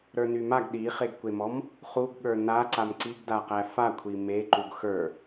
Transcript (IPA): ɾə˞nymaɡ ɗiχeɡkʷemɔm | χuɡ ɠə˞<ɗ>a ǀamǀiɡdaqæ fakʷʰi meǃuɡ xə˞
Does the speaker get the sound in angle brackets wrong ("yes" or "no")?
yes